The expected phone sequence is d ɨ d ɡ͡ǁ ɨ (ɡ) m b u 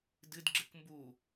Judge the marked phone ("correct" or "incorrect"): incorrect